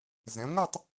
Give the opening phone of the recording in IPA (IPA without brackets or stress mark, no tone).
z